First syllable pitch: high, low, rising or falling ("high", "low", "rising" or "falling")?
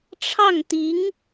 falling